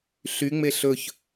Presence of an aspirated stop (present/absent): absent